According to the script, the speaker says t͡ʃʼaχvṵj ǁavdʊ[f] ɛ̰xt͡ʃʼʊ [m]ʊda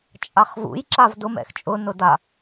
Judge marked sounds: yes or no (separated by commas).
no, no